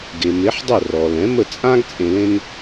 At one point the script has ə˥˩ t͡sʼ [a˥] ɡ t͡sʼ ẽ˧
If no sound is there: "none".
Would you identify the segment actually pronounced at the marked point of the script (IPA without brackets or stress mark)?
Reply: ã˥